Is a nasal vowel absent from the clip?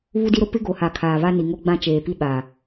no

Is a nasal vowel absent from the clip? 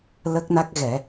yes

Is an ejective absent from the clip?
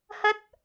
yes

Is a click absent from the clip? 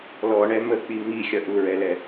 yes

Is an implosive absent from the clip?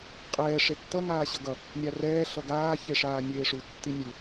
yes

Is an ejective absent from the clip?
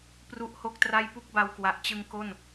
yes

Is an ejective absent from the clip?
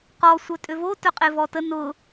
no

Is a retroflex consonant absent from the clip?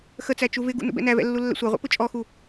yes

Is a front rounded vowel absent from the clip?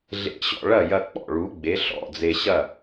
yes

